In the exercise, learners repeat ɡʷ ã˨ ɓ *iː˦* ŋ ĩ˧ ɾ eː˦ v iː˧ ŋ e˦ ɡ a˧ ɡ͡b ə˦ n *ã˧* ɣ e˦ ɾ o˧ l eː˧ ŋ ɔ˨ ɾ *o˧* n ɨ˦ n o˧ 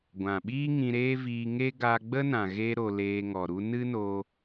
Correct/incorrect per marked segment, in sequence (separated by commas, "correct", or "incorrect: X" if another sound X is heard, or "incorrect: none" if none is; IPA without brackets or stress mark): correct, incorrect: ã˨, incorrect: u˧